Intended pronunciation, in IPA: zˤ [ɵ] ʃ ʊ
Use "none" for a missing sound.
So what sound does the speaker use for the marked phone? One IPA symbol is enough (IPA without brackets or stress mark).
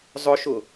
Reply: ʊ